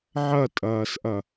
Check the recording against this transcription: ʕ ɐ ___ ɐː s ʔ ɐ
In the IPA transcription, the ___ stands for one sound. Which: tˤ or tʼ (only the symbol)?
tʼ